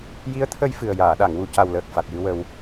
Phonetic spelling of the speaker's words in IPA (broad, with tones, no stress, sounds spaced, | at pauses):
j i˧˥ ə̯ t̪ʰ ə˧ j f ɨ˨˩ ə̯ j aː˨˩˨ ɗ a˨˩˨ ŋ w u˨˩ c a˨˩ w l əː˨˩ k̚ f a˨˩ t̚ j ɨ˧ w ə˧ w